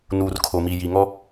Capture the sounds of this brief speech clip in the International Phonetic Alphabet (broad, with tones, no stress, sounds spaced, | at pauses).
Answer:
n uː˨ r kʰ o˨ m i˨ j i˨ ŋ ɔ˦